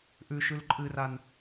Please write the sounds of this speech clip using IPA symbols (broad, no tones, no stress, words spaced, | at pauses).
ʔʉ ʃʉlǃʼɨran